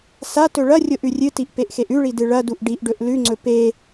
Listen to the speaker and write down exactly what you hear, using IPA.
s a t ɵ ɭ ɐ rʲ o ʔ ʉ rʲ ɨ t i ʔ p e ʔ x e ʔ ʉ ɭ i d ɨ ɭ ɐ d u ʔ ɖ i ʔ ɖ ɵ ʔ l ʉ ŋ͡ǀ ɵ p e

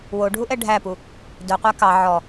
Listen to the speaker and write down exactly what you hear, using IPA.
w o ɖʱ u ʔ ɛ ɖʱ æ p u | d œ qʷ æ k ɑ ʕ ɔ

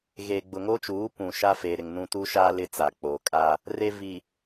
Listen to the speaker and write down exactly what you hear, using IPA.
ɣ eː˨ ɡ͡b ʊ˨ ŋ o˦ t͡ʃ uː˨˦ p ũ˨ ʃ a˦ f e˨ ɾ ɪ˨ ŋ n ũ˦ t u˦ ʃ aː˦ l ɪ˦ t͡s a˨ k͡p oː˨ kʼ a˦ | r e˦ v i˨

